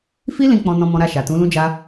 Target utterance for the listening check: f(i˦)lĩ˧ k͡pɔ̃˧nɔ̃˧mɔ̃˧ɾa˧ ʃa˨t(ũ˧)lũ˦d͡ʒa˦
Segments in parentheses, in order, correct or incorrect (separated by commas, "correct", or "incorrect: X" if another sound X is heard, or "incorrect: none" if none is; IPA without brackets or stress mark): correct, incorrect: ũ˨˦